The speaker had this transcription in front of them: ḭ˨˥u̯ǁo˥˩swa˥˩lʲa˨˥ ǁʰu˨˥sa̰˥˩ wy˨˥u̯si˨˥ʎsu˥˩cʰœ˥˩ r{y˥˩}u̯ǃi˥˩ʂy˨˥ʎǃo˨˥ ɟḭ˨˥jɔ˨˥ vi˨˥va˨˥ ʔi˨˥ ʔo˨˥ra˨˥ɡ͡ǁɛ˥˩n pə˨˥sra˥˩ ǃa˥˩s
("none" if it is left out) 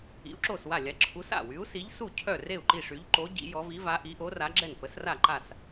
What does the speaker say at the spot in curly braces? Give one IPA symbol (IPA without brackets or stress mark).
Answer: e˥˩